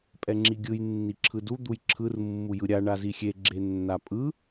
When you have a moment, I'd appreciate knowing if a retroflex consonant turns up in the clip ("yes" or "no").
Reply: yes